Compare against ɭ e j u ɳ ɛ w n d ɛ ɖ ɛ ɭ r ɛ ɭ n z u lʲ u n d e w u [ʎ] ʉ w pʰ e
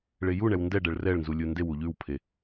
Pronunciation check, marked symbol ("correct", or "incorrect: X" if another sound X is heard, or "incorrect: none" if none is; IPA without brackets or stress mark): correct